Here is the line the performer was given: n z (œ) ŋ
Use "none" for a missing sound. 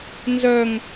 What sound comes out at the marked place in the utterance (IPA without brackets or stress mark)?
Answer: œ